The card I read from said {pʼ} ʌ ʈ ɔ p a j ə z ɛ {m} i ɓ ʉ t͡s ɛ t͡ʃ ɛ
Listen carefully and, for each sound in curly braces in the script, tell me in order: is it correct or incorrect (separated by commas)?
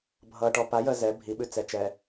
incorrect, incorrect